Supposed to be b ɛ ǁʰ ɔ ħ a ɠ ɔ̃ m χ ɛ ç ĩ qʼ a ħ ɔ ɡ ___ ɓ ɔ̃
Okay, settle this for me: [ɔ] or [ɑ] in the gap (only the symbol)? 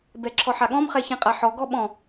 ɔ